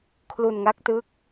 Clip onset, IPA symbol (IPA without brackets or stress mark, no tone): kʰ